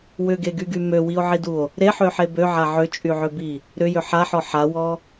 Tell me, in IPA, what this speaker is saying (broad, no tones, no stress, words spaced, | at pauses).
wʏɡeɡyɡy møwio̯ʕiduo̯ | ɾeħøħe bøʕa ʕʏt͡ʃʼyʕʏbi | ɾʏjʏ ħaħɔ ħawɔ